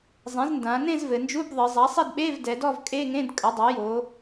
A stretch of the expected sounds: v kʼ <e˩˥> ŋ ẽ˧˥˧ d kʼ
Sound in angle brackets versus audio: incorrect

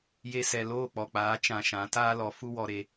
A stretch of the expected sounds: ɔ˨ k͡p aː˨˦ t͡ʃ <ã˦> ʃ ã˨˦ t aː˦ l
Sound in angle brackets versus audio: incorrect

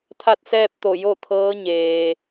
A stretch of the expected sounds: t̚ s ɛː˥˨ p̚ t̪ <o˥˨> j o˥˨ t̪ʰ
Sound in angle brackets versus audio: incorrect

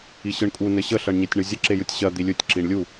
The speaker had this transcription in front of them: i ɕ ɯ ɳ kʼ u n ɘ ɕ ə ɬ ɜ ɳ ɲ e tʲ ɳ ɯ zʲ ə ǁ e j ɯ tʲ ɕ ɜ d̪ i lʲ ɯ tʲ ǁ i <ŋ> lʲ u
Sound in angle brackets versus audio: incorrect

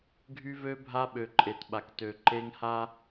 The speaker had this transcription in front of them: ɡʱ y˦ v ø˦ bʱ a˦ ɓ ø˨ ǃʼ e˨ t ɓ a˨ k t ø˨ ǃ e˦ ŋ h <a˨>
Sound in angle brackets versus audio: incorrect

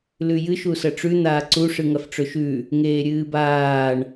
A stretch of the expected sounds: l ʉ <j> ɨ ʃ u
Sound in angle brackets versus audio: correct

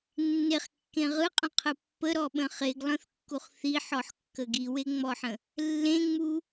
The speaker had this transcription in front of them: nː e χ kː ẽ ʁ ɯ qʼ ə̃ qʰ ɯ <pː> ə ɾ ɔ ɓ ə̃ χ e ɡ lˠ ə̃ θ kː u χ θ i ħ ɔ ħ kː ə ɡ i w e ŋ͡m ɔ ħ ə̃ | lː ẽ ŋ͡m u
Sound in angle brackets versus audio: correct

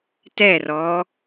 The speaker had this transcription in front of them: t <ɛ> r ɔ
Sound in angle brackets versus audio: correct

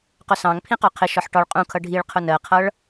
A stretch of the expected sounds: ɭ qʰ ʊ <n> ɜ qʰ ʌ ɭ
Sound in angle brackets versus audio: correct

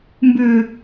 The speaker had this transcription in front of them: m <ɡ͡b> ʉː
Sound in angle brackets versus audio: incorrect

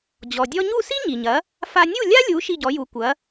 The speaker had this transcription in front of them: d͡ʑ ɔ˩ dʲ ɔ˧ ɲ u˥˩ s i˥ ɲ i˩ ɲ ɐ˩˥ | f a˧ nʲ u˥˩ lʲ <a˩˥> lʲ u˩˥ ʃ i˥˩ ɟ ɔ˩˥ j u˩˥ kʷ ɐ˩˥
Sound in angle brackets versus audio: incorrect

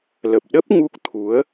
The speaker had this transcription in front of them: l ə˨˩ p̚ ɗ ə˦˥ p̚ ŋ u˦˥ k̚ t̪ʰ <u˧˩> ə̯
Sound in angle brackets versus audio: incorrect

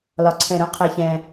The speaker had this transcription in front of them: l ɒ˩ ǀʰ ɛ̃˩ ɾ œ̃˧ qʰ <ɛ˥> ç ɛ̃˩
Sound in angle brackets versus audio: incorrect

